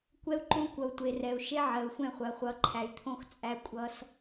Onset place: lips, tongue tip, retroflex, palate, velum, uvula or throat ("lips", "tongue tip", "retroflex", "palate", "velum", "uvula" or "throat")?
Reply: velum